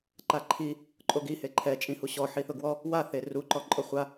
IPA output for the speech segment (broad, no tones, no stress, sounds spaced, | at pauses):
ǃ a ǃʰ i | ǃʼ o ɡ i h e ǃʰ ɛ t͡ʃʼ ĩ h u ɕ ɔ ħ i θ ʊ ɡ w ɔ | w a θ e r u ǃ ɔ ǃʼ ɔ χʷ a